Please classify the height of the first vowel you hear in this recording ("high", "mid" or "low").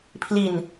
high